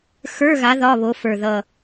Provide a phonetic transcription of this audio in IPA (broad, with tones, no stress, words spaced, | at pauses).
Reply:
xə˞˧˥˧ɣa˨˦ ðɒ˧˥˧βo˨˦fə˞˨˩ðʌ˨˩